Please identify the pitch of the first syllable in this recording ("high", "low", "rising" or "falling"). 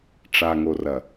low